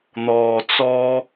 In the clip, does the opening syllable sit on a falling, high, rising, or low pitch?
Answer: low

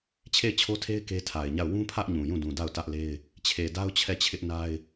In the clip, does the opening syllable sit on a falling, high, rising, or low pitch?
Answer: falling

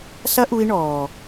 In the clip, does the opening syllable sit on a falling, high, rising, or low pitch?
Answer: high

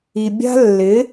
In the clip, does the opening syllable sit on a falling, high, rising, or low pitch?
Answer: low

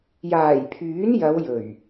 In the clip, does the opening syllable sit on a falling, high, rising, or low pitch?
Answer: low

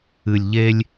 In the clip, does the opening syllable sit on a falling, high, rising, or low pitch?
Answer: low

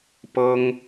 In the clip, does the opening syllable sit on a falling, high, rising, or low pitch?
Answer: high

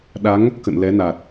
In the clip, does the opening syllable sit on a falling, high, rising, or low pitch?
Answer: rising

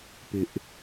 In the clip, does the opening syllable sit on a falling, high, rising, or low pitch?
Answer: high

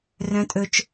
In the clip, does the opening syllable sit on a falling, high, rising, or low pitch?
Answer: rising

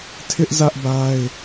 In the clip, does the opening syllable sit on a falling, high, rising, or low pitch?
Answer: high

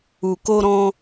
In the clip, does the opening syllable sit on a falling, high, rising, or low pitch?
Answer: low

